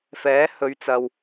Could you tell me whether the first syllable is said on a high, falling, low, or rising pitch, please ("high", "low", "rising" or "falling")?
rising